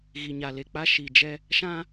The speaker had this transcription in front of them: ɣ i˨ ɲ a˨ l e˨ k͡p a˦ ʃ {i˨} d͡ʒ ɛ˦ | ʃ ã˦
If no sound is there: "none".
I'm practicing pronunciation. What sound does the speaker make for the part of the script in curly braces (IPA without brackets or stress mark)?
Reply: i˨